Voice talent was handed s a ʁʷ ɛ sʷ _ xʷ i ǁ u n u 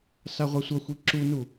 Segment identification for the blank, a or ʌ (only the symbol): ʌ